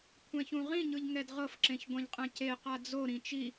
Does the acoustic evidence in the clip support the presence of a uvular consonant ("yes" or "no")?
yes